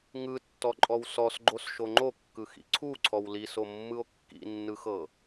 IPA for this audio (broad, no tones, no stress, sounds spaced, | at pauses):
ŋ ɯ tː ɔ ǃʼ ɔ w s ɔ s ɡ͡ǃ o s ʃ o ŋ͡ǃ o kː ɯ x ḭ ǀʰ u ǀʰ ɔ w l i s o mː ɯ o̯ kː ḭ nː ɯ x ɤ